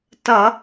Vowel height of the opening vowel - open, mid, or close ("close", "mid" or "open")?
mid